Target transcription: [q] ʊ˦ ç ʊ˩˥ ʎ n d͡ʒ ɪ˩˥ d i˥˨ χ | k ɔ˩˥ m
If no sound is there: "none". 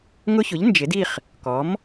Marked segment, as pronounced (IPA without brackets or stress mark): ŋ